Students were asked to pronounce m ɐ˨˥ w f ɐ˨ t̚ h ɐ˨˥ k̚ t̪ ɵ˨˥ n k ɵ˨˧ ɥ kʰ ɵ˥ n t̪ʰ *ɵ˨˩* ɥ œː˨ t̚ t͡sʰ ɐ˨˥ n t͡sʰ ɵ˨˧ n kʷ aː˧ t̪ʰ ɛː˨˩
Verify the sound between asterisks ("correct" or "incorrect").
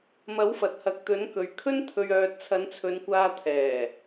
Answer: incorrect